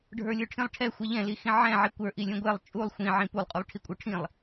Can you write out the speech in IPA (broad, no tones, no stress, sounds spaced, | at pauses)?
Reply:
ɖʱ ə˞ lʲ ə˞ ʈʰ ĩ lˠ ʈʰ ɛ xʷ ɛ ʎ ɛ̃ l i x ĩ ʕ ɛ̃ ʕ i kʷ ə˞ ʔ i lʲ ũ ɡʷ ɛ lˠ t͡ʃʼ u lˠ xʷ ĩ ʕ ĩ p u lˠ qʼ u lˠ ʈʰ i kʷʼ ə˞ ʈʰ ĩ lˠ